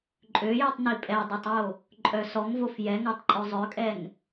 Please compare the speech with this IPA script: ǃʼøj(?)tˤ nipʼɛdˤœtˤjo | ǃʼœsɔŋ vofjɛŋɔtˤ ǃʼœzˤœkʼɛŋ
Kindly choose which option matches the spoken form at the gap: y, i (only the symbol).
y